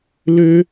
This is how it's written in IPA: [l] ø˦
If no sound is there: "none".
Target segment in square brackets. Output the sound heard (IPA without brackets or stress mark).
l